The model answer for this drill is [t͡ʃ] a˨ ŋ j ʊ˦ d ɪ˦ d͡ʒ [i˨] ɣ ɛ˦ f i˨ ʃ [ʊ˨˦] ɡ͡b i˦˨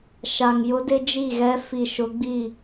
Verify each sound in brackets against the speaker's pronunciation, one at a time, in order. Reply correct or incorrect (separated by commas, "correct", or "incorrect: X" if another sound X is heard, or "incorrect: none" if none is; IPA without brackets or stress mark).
incorrect: ʃ, incorrect: i˦˨, correct